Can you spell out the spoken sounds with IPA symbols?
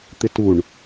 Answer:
t̪ ɪ t u ɳ

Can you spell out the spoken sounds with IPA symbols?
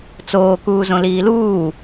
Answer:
t͡s oː k uː z õ l iː l uː

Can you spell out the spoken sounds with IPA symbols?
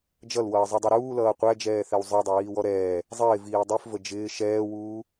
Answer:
d͡ʒ ʌ l w ʌː zˤ u dˤ u ɾ uː l ʌː qʷ æ d͡ʒ ɛː θ ɛ w zˤ ə˞ dˤ ʌ w iː w ɔ ɾ ɛː | zˤ ɪː v iː dˤ i f v ə d͡ʒ ɪː ʃ ɛː w uː

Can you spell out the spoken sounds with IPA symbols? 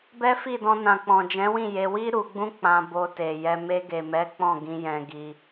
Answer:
b ɛ˦ f i˦˨ d ɔ̃˧ n ã˨ k͡p ɔ̃˨ d͡ʒ ɛ̃˨˦ w ĩ˦˨ j e˧ w i˦ ɾ u˧ ɡ͡b ũ˦ k͡p ã˧ b o˧ t e˨ j ɛ˧ m e˧ ɡ e˨ m ɛ˨˦ k͡p ɔ̃˦˨ ɡ ĩ˧ j ɛ̃˧ ɡ i˧

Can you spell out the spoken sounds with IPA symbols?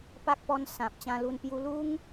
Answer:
p a˦ k̚ p ɔ˧ n s ã˨ p̚ t͡ɕ ã˧ l u˧ n p j u˧ l u˦ ŋ

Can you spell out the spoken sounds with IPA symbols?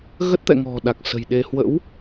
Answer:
ɣ ə˦˥ t̚ t̪ ɛ̰˧˨ ŋ ɔ̤˨˩ ɗ a˨˩ k̚ s ə̤˨˩ j ɗ e˧ h w ə̰˧˥ w

